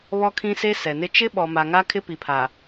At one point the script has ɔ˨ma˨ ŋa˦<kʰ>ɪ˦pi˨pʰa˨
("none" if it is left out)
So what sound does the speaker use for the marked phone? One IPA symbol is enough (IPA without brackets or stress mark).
kʰ